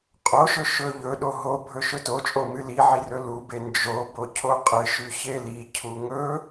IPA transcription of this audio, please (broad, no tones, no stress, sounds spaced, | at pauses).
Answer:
qʼ o ʃ ɵ ʃ ɵ ʎ ɵ ɗ o ɦ o bʱ ɵ ʃ ɵ t o t͡ʃʼ o m ɨ l i ʕ i r ɵ l u b e n d͡ʒ o b o cʰ o qʼ ɨ ʃ ʉ ç e l i cʰ u ŋ ɵ